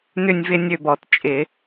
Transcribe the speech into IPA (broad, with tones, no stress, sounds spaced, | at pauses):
n ʏ˥˧ nʲ v ɪ˥˧ nʲ ø˥˧ b ɔ˨˩˦ t t͡ʃʼ ɪ˨˩˦